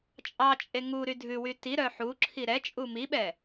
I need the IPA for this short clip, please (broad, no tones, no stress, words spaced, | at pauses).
t͡ʃʼɑt͡ʃʼe ŋu ɾydʱʉwy tiɾœ ħuǁʰi ɾɛt͡ʃʼu miɓɛ